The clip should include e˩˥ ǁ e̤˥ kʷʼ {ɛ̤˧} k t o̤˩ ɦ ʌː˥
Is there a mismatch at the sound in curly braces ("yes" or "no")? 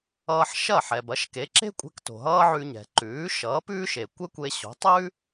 no